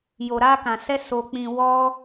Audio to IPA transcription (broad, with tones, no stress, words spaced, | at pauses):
jo˧ɾa˦kã˧sɛ˦ so˧k͡pĩ˧ wɔ˦